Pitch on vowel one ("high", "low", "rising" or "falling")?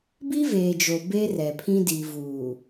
high